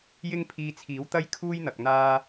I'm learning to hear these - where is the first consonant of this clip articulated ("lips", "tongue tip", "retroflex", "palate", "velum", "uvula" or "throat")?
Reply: palate